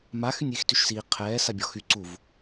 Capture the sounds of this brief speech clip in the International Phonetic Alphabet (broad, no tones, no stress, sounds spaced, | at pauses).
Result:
m a x y nʲ iː x t y ʃ s iː qʰ ɛː s a bʲ ɔ x y ǀ u v